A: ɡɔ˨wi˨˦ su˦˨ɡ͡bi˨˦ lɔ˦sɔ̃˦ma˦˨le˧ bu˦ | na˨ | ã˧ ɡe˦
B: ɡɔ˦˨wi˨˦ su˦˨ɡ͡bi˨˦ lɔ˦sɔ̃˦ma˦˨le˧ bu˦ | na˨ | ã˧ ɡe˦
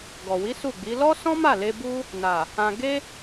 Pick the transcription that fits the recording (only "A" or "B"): A